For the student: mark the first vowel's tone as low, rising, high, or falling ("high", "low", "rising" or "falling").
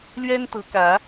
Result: high